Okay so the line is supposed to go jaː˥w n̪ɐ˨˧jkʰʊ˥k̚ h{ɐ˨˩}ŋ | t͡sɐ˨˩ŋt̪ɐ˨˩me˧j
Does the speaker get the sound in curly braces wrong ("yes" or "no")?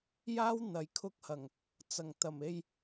no